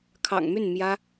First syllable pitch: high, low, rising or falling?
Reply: low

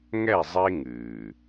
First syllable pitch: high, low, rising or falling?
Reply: falling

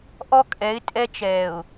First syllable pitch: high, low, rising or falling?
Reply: high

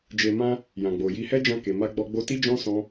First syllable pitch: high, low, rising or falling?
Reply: low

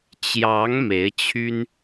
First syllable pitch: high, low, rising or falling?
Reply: rising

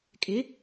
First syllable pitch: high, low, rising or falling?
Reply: rising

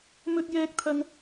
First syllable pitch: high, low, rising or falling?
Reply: high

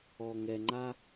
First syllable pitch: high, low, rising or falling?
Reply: low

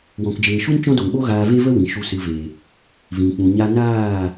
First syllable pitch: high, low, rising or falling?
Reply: low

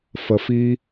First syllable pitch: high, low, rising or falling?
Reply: low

